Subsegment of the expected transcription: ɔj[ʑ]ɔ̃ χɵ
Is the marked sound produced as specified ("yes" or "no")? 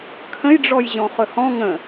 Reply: yes